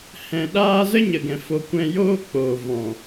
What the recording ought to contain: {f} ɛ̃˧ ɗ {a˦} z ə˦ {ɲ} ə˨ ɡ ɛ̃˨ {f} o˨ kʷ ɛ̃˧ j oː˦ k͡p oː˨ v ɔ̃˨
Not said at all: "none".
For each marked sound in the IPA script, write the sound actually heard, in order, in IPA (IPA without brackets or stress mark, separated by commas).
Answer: h, aː˦, ɲ, f